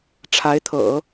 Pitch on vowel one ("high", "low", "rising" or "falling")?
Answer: rising